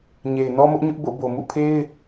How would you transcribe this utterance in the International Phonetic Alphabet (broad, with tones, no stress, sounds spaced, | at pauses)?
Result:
ɲ e˨ ɪ̯ n ɔ˦ m ʊ˦ ʔ ɲ ʊ˦ ʔ b o̰˦˨ b o˨ m ṵ˦˨ pʰ e˦ ɪ̯